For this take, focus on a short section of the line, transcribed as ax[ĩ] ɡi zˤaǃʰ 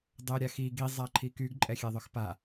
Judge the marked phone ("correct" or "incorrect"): incorrect